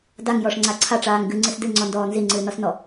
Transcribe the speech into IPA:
d a ŋ j ɔ ʂ ŋ͡ǀ a ǀʰ a ʈ͡ʂ aː ŋ ɡ ɨ ŋ͡ǀ ɨ s d ɨ ŋ͡ǀ ɔ n d ɔː n z i ŋ͡ǀ ɨː n ɔ s n ɔ

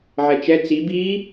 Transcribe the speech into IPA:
ʕ ɛ t͡ʃ ɛ t͡s i b iː

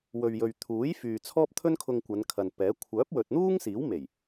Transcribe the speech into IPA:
w ɵ˨ ɥ j ɵ˨ ɥ t̪ʰ uː˨˥ j f yː˨ t͡sʰ ɔː˥ p̚ t̪ʰ ɵ˥ n kʰ ʊ˧ ŋ kʷ ɐ˨˧ n kʰ ɐ˨ n p ɛː˨˥ kʷʰ œː˨˥ p̚ w ɵ˨ t̚ n̪ uː˥ ŋ s iː˨˥ w m e˨˩ j

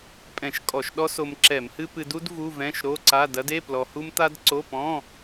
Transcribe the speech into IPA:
pʼ ɛ̃˧˩˧ ʃ kʼ ɔ˧˩˧ ʃ ɗ ɔ˥ s o˧ m ǁ ɛ˧˩˧ m h ɨ˥ p ɨ˧ d u˥ d v u˧˥˧ v ɛ̃˧˥˧ ʃ ɾ o˧˥˧ ǀ a˧˥˧ d ɐ˥ d e˧˥˧ p l ɔ˧ h u˥ m t̪ a˥ d ǀ o˧˥˧ p ɔ̃˧˥˧

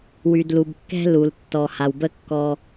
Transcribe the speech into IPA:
w y˩ d l u˩ b kː ɛ̤˦ l u˩ l tː ɔ˩ h a˩ w b ə˦ kː ɔ˨

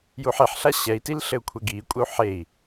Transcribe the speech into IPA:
j u ħ e ħ ɬ a ɕ ɛ i̯ t i l ɬ ɘ u̯ kʷʰ ɘ ɡ iː kʷʼ ɘ u̯ ħ e i̯

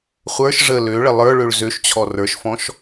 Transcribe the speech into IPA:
χʷ ə˞ ʃ ʐ ə l ø ɭ ə lˠ ə˞ ɭ ø ɭ z ø ʃ t͡ɕʰ ɔ r ə˞ ʃ f ɔ̃ ʃ

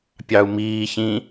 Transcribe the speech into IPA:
pʲ ɑ u̯ m iː ç ĩ

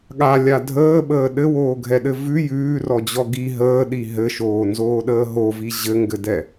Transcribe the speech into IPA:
ɠ a lʲ a dʱ əː ɓ əː ɗ ɘ w oː ɡʱ ɛ ɗ ɘ v ʉ j ʉː r ɔ d͡ʑ ɔ ɡ i ɦ əː ɗ i ɦ ɘ ʃ oː n z oː ɗ əː ɦ o v i ʑ ɘ ŋ ɡ ɘ d ɛ

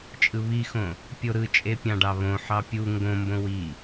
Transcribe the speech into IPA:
t͡ʃʼ ɯ β i x õ | pʲ o ɾ ɯ t͡ʃʼ e pʲ ɑ̃ ɖ ɑ β õ ħ ɑ pʲ u ŋ ɡ õ m b õ w i

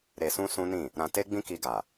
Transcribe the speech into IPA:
ɾ e˧ s ũ˦ s ũ˦ n ĩ˦˨ | ɾ ã˧ t e˦ ɡ͡b ĩ˦ k i˧ ɡ a˨

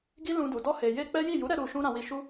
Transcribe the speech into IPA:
ɡ i˦ l ũ˧ d u˨ d ɔ˧ h e˨ j e˧ k͡p ɛ˦ j i˦˨ j u˨˦ ɾ ɛ˧ ɾ u˨ ʃ ũ˧ ɾ ã˧ w i˧ ʃ u˦

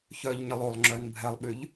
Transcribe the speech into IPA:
ç œ ʎ ɲ ə lˠ o lˠ ŋ͡ǁ œ n bʱ ɛ lˠ ɓ y ʎ

